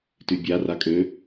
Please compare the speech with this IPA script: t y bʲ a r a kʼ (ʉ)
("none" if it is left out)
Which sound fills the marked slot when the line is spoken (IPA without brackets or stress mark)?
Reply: ø